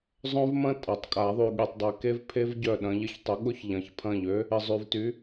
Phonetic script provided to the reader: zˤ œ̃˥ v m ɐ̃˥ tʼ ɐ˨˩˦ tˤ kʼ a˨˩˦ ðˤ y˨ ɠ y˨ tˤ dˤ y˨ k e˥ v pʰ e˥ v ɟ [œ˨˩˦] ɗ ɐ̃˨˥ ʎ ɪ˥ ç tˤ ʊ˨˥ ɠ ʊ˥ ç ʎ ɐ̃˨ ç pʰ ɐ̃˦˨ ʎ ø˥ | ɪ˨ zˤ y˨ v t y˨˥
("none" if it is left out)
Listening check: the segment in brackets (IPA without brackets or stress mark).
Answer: œ˦˨